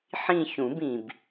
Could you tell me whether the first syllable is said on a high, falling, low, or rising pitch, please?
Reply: falling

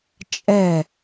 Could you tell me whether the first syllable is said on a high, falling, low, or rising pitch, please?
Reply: falling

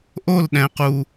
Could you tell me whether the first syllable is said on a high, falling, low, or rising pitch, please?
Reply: falling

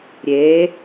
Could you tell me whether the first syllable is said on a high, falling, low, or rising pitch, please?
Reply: rising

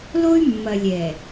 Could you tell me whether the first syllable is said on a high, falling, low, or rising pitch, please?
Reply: high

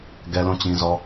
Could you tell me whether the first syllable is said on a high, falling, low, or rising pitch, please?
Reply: high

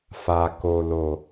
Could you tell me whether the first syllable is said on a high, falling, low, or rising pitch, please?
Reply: low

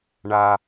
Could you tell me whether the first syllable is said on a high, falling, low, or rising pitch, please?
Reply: low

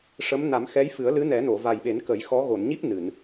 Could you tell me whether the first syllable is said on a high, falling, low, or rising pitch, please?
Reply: rising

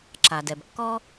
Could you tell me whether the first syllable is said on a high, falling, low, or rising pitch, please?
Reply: low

